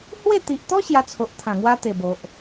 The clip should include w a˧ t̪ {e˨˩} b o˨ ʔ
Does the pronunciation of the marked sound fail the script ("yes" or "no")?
no